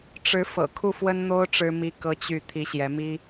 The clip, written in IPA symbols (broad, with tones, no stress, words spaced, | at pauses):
ʈ͡ʂɻ̩˧˥ fɤ̰˨˩ kʰu˥˩fwə˥nn̪o˥ʊ̯ ʈ͡ʂɻ̩˥mi˥ kɤ˥t͡ɕy˥˩ t̪ʰi˧˥ɕjɛ˧˥mi˥